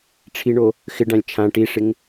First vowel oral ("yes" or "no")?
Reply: yes